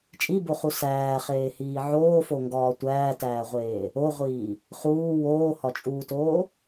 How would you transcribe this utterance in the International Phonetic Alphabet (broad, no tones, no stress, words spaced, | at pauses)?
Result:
t͡ʃʼiboχu sæːχeːhiː ʕoːfoŋɡɒː tʷæːtæːʁʷeː | oʁʷiː | χuː woːhɒt͡ʃʼuːtoː